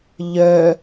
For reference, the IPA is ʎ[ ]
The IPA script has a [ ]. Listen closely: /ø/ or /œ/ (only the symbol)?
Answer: œ